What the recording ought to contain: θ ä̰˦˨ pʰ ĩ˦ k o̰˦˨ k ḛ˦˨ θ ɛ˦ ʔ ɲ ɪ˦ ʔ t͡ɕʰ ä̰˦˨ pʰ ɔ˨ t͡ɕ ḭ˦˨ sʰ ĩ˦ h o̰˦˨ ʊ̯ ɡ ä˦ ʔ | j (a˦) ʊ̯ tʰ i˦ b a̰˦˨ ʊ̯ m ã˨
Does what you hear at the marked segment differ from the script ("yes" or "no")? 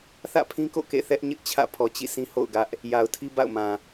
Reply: yes